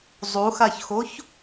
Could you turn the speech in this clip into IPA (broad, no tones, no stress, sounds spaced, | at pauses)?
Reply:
zˤ u x a ç x o ç